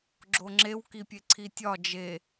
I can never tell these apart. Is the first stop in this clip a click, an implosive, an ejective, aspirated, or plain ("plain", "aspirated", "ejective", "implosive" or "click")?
click